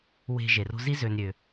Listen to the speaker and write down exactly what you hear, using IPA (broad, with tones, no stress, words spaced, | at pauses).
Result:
we̤˨ ʒe˩ro̤˦zi˥ zø˨n ɾʲø˩